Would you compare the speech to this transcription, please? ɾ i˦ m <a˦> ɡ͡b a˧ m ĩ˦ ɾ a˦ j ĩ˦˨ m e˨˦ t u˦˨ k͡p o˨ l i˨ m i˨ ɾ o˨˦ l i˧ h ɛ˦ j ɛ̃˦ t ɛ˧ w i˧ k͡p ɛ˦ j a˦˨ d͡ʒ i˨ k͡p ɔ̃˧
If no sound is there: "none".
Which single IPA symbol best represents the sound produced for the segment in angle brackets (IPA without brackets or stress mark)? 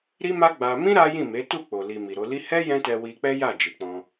a˦